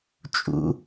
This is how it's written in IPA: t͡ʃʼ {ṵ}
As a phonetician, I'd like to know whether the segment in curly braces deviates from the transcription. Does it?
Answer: no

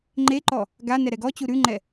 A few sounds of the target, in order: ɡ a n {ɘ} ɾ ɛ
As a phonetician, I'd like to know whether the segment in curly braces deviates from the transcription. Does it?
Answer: yes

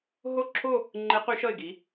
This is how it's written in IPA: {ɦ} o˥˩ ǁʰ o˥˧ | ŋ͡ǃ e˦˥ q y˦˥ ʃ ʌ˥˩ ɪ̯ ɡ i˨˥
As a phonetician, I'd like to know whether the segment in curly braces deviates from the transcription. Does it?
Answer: no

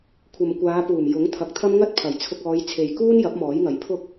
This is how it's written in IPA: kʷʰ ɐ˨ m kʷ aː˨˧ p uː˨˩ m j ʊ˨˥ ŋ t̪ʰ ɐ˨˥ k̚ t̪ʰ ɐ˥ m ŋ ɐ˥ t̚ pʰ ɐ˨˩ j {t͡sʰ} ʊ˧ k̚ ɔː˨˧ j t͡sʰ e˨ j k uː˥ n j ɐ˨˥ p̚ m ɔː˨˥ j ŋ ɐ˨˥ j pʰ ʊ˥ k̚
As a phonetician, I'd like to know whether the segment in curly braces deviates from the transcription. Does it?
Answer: no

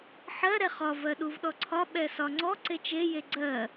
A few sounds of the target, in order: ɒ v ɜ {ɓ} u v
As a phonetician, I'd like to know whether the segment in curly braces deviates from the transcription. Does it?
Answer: yes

